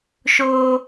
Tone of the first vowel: high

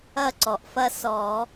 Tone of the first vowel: falling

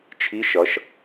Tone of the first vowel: rising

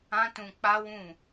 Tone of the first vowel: high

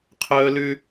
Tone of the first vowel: high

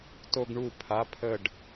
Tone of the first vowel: high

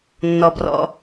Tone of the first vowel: low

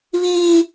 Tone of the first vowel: high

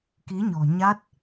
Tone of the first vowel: rising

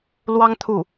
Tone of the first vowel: high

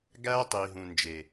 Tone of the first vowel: high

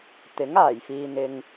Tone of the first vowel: rising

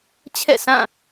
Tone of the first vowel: falling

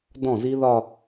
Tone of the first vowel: falling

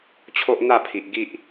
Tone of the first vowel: high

